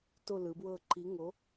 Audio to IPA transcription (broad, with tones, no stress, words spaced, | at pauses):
to˦˨lɯ˨˦bwɤ˦˨ ǃi˨˦ŋo˨˦